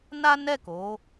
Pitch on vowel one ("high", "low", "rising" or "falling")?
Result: high